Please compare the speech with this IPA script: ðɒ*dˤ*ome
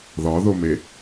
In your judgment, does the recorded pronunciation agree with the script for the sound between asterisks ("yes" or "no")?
no